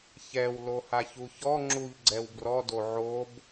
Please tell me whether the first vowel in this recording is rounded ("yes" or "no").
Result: no